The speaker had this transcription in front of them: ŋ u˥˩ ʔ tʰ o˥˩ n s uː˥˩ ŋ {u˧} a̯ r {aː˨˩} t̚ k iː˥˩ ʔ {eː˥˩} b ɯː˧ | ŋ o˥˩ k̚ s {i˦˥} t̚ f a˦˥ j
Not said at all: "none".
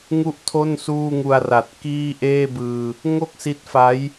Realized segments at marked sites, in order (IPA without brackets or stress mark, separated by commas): u˧, a˨˩, eː˥˩, i˦˥